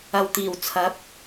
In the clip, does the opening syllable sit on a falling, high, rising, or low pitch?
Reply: low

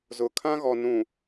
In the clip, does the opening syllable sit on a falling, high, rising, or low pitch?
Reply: rising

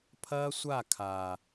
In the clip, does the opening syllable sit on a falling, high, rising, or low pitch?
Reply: high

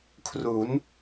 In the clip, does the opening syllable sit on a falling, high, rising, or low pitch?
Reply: rising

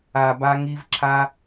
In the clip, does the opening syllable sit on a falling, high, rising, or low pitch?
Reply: low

